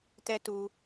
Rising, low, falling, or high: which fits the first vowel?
high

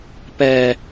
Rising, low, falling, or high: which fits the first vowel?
low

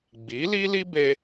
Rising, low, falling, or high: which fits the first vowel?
rising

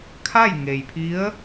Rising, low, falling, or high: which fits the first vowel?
falling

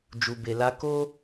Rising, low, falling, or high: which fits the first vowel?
low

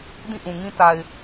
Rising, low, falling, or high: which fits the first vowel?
falling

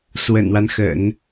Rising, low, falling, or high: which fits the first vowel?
low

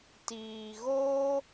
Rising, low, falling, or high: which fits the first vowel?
low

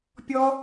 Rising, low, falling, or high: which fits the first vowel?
high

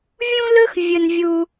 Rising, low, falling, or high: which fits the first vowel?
high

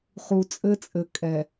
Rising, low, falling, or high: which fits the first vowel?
low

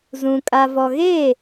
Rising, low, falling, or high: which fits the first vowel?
low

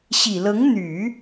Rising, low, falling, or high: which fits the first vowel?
low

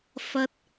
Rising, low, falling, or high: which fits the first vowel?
rising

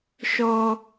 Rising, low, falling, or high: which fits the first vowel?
high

